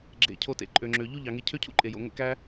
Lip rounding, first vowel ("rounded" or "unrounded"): unrounded